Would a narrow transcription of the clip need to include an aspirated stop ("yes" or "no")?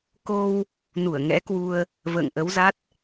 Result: no